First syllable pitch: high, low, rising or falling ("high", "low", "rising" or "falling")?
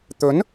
rising